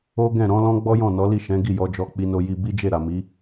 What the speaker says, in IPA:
o˦ɡɛ̃˦˨ ɾɔ̃˨˦lɔ̃˦ ɡ͡bɔ˦jɔ̃˦˨ nɔ˨˦li˦˨ʃɛ̃˨˦ ɡi˦˨jɔ˧d͡ʒɔ˧ k͡pi˧no˧ji˧ bi˦d͡ʒe˦˨ ɾa˨mi˨˦

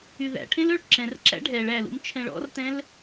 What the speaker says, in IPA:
yðæ̰ʈʰẽl øɭǁɛ̃rǁæ̰ ɖʱɛɭ ælṵm t͡ʃʰɛ̃ɭɔ̰rtɛ̃l

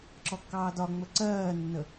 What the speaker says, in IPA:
ǁɔkːɑːdɒŋ͡mə ǀɜːnːə

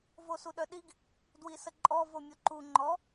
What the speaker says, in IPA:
vosuɗœɗiɡ | dwisəǃʼɔ vomʲoǃu ŋ͡ǃɔ

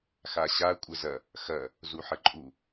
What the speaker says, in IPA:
xaɕa kʷʼəzɐ | xɐ | zuħəǃʼu

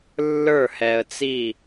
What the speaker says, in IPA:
lːə˞˥˩hɛ˨ə̯t͡si˥˩

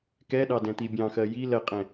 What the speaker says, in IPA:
kɛɗɑ dɛ̃t̪ibʲɑ̃xɜ ji lɜqʼɛ̃

